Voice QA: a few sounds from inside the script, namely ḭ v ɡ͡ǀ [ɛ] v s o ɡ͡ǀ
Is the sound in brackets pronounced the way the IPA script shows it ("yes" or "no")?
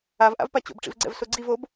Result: no